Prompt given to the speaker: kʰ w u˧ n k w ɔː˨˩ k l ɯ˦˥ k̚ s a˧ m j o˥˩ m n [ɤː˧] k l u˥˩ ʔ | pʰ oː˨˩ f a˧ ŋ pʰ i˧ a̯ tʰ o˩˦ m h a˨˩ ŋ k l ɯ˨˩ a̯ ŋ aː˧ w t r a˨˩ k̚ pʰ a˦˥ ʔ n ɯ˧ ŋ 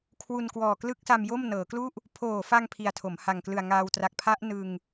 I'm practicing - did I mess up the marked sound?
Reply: yes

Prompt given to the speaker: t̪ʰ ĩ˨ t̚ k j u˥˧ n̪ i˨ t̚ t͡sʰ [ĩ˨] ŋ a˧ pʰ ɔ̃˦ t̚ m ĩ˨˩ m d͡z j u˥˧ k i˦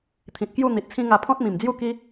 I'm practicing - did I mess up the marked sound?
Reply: yes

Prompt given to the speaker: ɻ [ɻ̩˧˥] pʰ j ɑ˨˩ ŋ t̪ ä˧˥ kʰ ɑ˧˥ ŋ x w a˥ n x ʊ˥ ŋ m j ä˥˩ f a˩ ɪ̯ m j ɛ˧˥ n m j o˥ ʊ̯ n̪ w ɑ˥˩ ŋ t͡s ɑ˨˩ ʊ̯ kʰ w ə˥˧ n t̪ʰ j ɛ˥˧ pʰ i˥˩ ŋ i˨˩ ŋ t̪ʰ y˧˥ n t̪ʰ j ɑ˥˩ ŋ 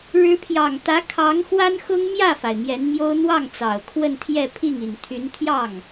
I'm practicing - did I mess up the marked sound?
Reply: no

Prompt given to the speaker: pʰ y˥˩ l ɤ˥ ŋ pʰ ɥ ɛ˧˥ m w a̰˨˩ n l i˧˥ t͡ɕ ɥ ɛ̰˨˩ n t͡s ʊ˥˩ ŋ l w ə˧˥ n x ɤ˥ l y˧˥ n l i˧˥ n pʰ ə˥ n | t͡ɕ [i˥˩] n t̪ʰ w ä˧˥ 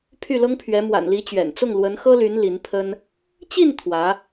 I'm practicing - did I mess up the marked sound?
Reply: no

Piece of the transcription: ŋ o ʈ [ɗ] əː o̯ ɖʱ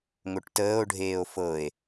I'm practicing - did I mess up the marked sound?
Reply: yes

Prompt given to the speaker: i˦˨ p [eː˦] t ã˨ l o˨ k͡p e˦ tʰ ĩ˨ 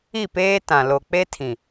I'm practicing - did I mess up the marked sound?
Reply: no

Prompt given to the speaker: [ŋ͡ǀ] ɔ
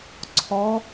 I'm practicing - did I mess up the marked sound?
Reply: yes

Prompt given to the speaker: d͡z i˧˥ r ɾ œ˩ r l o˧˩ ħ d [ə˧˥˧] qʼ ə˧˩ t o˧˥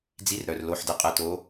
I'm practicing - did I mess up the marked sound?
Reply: yes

